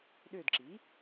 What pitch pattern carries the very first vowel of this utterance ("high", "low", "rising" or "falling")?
falling